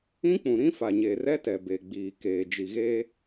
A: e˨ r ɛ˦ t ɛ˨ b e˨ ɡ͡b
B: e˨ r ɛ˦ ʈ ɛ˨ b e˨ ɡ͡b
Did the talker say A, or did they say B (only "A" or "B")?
A